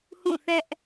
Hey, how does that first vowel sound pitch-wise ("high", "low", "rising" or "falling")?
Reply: falling